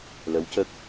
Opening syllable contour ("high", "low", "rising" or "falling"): rising